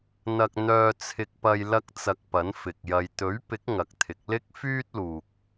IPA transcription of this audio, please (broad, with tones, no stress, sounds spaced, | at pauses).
n̪ ɐ˧ k̚ n̪ œː˧ t͡sʰ ɪ˧ k̚ p ɐ˧ j l ɐ˥ k̚ t͡s ɐ˧ k̚ p ɐ˨˥ n f ɪ˨ k̚ j ɐ˨ j t̪ ɵ˨˥ ɥ p ɪ˨˥ k̚ ŋ ɐ˨˥ k̚ t̪ʰ ɪ˨˥ k̚ l ɪ˥ k̚ f yː˥ t̚ l uː˨ k̚